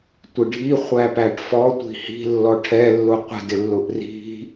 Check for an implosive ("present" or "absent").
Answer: absent